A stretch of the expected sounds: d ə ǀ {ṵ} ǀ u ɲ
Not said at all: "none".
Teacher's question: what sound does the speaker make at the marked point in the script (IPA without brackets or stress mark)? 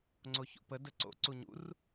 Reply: o̰